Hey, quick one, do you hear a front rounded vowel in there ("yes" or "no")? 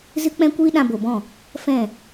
no